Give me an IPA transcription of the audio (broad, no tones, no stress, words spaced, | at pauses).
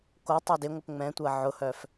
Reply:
kotˤɛ dɪŋʷəp ŋ͡mɛ̃tʷɐ ʕʊhœf